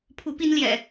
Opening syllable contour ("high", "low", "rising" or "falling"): rising